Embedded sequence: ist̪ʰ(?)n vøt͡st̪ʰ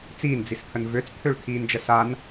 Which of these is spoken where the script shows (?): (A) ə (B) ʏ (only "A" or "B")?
A